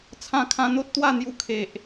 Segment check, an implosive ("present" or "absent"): absent